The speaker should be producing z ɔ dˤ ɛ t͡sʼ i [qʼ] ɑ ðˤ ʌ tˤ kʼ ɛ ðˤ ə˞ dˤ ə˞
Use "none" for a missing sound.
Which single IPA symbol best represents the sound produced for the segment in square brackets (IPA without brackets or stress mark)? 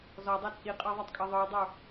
qʼ